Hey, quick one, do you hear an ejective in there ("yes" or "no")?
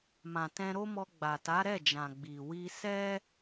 no